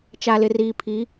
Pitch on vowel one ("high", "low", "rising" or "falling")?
low